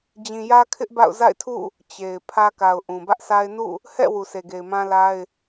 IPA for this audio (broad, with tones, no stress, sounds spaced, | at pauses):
d͡ʑ ĩ˨ j ä˦ kʰ ɪ˦ ʔ b a̰˦˨ ʊ̯ z a̰˦˨ ɪ̯ tʰ ṵ˦˨ | t͡ɕ e˨ ɪ̯ pʰ ä˦ k a˨ ʊ̯ ʔ ũ˨ b ä˦ ʔ s a˦ ɪ̯ n ṵ˦˨ | h ɛ̰˦˨ w u˨ sʰ e˨ ɡ e˨ ɪ̯ m ã˦ l a˦ ɪ̯